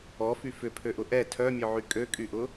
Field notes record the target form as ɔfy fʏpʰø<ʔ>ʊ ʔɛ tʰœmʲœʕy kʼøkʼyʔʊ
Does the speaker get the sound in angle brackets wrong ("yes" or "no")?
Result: no